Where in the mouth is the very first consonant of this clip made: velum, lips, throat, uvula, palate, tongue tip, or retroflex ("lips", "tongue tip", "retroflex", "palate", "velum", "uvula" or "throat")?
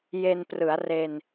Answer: palate